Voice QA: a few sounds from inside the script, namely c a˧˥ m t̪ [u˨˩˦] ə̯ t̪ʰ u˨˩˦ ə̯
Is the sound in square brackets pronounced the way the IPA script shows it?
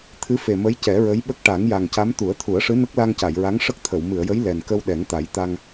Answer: yes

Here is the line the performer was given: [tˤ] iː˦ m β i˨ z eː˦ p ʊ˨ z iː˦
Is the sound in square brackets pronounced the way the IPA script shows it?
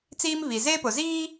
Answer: no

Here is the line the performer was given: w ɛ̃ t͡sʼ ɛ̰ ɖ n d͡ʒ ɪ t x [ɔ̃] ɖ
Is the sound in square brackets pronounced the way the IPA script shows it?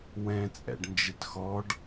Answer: no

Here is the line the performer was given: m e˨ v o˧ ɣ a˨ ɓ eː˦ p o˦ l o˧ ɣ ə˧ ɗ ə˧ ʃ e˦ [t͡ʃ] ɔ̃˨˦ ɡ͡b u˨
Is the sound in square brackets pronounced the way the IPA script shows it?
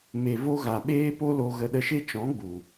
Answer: yes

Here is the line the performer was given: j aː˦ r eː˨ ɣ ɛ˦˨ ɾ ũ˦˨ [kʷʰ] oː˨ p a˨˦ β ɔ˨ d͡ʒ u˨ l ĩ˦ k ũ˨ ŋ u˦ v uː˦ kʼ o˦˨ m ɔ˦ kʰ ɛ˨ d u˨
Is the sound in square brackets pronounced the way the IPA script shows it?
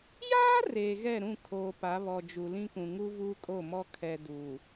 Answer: no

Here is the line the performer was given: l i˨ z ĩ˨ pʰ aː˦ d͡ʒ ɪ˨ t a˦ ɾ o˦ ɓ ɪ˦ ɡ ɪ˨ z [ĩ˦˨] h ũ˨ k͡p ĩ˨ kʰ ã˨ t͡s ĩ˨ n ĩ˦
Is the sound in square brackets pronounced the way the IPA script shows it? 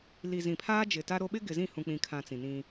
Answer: yes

